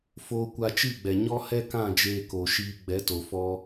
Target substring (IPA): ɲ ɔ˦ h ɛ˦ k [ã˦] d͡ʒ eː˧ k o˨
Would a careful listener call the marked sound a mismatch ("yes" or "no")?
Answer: yes